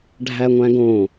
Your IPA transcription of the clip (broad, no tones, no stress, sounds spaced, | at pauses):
ɖʱ æ ŋʷ æ̃ ɡ õ